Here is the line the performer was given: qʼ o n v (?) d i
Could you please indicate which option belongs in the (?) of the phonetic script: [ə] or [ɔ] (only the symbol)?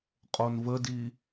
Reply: ə